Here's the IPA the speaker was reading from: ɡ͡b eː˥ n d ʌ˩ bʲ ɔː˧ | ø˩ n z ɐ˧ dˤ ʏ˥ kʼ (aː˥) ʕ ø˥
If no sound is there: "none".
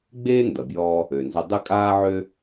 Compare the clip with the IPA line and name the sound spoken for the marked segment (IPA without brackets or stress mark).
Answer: aː˥